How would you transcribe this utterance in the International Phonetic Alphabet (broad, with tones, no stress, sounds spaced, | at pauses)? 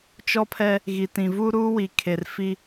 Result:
t͡ʃ ɔ˦ pʰ ɛ˦ | ɣ i˨ t ĩ˨ v u˦ ɾ uː˦ w i˨ kʰ e˨ r f i˦